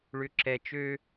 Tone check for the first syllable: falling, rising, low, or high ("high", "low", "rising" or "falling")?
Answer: high